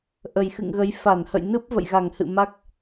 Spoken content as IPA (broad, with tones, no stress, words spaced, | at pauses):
ʔə˨˩jxɨ̰˧˨ŋɣə˨˦j fa˧˩nhə̰˧˨j nɨ˦˥p̚ və̰˧˨jɣa˧˩ŋ hɨ̰˧˨ma˦˥k̚